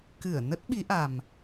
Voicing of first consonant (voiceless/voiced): voiceless